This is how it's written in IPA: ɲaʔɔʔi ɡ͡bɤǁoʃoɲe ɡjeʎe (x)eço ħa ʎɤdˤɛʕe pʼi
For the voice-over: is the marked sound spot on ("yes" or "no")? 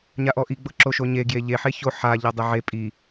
no